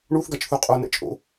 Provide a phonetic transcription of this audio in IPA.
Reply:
ɳ u θ ɡ a t͡ʃ θ u qʼ o n ɛ̰ t͡ʃʼ o̰

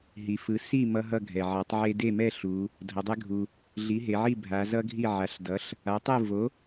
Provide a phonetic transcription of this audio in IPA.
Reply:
ɦ i˩ f ɯ˩˧ s i˥˩ m ʌ˦ ɦ ʌ˥˩ ɡʱ ɛ˩ ʕ a˩˥ tˤ ʕ e˦ d e˥˩ m ɛ˥˩ ɬ u˩˧ | dʱ ʌ˩˧ dˤ ɛ˦ ɡʱ u˩ | ɮ i˩˥ ɦ e˩˧ ʕ i˥˩ bʱ a˩˧ z ʌ˦ ɡʱ i˥˩ ʕ a˩˥ ɬ d ʌ˩˥ ɬ | a˩˥ tˤ ɯ˥˩ v o˩˥

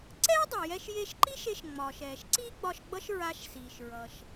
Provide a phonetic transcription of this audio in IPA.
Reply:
ǀ ɛː˥ dˤ i˩ j ɛ˧ ʃ j e˧ ʃ ǃ i˥ ʃ e˧ ʃ ŋ͡m ɒː˩ ʃ ɛː˩ ʃ ǀ iː˥ ɡ͡b ɒ˧ ʃ ɡ͡b ʌ˥ ʃ ɹ a˧ ʃ s iː˩ ʃ ɹ ʌ˩ ʃ

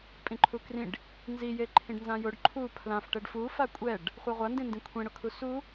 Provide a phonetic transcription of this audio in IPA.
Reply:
pʼ ĩ ǃʰ u k r ĩ ɖ | n z i j e ǃʰ ĩ ɖ n z ã j ʊ ɖ ǃʰ u pʰ l ã f ʈ ɛ ɖ f u f a kʷʼ ɛ ɖ | χʷ a ʁʷ a n d ĩ n d ĩ kʷʰ ẽ ɽ ʊ kʰ u s u

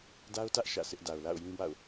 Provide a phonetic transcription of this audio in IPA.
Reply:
d a˦ ʊ̯ t ä˦ ʔ ʃ ä̰˦˨ s ɪ˦ ʔ d a˨ ʊ̯ l a̰˦˨ ʊ̯ j ĩ˦ b a̰˦˨ ʊ̯

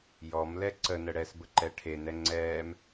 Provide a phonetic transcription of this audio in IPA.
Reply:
j ɔ m l ɛ ǀ ə n ə ɽ ɛ s b ə ǃ ɛ ʈʰ e n ɛ ŋ͡ǀ ɛː m

